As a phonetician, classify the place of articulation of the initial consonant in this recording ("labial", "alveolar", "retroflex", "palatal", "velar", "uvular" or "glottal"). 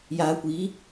palatal